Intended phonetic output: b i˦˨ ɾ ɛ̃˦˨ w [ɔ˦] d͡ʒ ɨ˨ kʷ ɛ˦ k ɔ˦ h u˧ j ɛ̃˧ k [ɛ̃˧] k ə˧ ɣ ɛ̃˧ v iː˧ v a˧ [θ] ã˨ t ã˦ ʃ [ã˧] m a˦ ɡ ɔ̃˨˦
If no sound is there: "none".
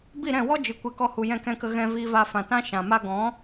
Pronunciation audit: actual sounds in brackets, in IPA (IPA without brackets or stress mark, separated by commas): ɔ˦, ɛ̃˧, f, ã˨